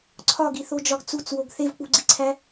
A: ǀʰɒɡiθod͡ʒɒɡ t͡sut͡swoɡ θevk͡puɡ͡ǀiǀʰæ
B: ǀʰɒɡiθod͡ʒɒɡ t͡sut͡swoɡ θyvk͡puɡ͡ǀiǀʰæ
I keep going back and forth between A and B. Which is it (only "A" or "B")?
A